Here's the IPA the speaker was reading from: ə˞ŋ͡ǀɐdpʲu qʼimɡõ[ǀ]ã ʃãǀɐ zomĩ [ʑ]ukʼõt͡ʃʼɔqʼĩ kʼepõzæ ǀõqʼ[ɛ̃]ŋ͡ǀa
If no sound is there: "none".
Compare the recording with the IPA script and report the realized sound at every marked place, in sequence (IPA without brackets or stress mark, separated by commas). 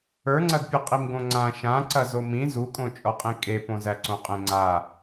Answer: ŋ͡ǀ, z, ẽ